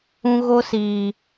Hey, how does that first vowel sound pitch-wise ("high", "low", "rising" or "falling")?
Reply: high